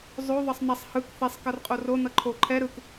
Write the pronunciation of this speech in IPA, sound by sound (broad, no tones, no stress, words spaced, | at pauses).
zˤo ðˤʌsˤnasˤ hɯk θesˤ kʌrqʼoro nʌǃʰo ǃʰɛ ɾɯk